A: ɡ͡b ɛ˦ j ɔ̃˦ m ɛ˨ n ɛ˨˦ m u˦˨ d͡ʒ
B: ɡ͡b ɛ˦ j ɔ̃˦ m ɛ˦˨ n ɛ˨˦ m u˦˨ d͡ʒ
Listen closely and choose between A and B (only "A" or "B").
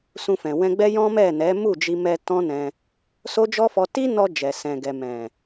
B